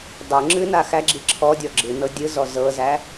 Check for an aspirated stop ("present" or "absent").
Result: present